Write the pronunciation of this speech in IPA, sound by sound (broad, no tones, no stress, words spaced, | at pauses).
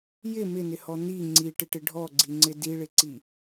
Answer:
jɪ mɪnɪhɔ ni ŋ͡ǀiʈɪʈɪ ɖʱɔɡ͡ǀiŋ͡ǀɪ diɭɪǀi